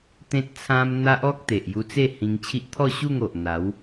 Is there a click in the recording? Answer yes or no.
no